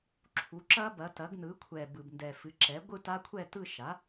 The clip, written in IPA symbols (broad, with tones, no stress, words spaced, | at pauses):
ǁʰu˩˥ǁɐ˦˥bɐ˩˥ tɐ˩˥ɡnɯ˩˥kʷʰɛ˨˩ bɯ˨˩bndɛ˨˩fɨ˩˥ǁɛ˩˥ ɡʷɯ˥˨ta˦˥kʷʰɛ˥˨ tɯ˥˨ ʃa˩˥